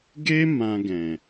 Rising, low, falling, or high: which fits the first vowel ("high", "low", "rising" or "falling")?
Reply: high